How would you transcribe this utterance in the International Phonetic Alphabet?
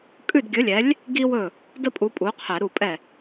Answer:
kʼ ʉ˥˩ d ɡʲ ɵ˨˥ lʲ ɛ˨˥ lʲ | ɡ i˥ w ɵ˥˩ | d ə˥ pʼ u˨˥ pʼ u˨˥ qʰ ɛ˧˩˧ ɾ u˥˩ pʼ ɛ˥˩

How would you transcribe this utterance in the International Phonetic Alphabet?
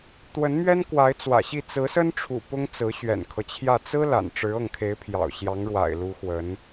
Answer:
t̪ w ə˧˥ n m ɥ ɛ˥ n k w a˧˥ ɪ̯ t͡s w ä̰˨˩ ɕ i˥˩ t͡s ɹ̩˧˥ s ə˥ n ʈ͡ʂʰ ṵ˨˩ p ʊ˥ ŋ t͡s ɹ̩˧˥ ɕ ɥ ɛ̰˨˩ n kʰ ɤ˦ t͡ɕʰ j ä˥˩ t͡s ɹ̩˥ l a̰˨˩ n ʈ͡ʂ ɻ̩˧˥ ɤ˥˩ ŋ kʰ e˧˥ ɪ̯ pʰ j ɑ̰˨˩ ʊ̯ ɕ j ɑ˧˥ ŋ ɻ w a̰˨˩ ɪ̯ l u˧˥ x w ə˧˥ n

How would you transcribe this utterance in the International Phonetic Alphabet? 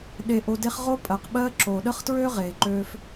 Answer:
ɗ e˨ ʔ o˨ d e˦ χ ʁ o˥ pʼ ɜ˩ q ɓ ɜ˥ ǁ oː˩ ɗ ə˥ χ t ɹ øː˥ ʁ eː˩ ǃ øː˦ f

